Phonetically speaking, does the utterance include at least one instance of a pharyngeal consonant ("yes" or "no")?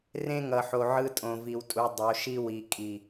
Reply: yes